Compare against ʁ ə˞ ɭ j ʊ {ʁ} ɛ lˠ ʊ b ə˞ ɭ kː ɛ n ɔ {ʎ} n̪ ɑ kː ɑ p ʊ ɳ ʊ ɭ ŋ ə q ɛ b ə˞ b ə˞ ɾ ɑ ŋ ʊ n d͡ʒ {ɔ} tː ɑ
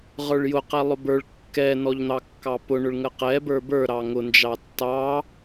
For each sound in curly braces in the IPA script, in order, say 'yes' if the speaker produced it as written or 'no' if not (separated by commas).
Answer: no, yes, no